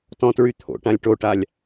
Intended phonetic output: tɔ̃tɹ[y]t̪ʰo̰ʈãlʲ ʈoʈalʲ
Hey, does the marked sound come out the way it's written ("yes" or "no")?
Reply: yes